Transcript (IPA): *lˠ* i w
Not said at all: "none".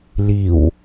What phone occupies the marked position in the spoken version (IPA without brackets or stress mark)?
l